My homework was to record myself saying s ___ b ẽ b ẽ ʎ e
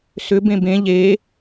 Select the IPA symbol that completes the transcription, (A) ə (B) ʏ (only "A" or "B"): B